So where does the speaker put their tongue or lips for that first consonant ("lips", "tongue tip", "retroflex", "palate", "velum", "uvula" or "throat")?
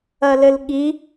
tongue tip